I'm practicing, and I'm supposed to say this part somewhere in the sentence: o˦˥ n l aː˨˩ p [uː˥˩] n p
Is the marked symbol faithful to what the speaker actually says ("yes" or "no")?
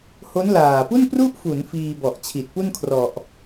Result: no